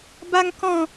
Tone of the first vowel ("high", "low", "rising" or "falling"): high